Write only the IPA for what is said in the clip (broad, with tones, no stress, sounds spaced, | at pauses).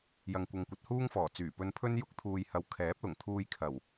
j ɐ˨ ŋ kʷ ɐ˨ ŋ kʷ ɐ˨˥ t̚ h uː˥ ŋ f ɔː˨˩ t͡s yː˨˩ p ɵ˧ n pʰ ɵ˥ n j ʊ˧ k̚ t̪ʰ uː˨ j h ɐ˨˧ w kʰ ɛː˨˥ p̚ l ʊ˨˩ ŋ t̪ʰ uː˧ j kʰ ɐ˨˩ w